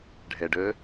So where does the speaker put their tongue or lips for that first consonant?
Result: retroflex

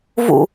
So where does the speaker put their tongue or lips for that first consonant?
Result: lips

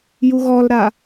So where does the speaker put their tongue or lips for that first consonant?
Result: palate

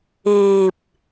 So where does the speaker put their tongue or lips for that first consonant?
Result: lips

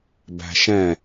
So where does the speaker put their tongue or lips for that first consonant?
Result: lips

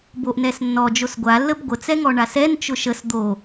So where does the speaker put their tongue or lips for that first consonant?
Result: lips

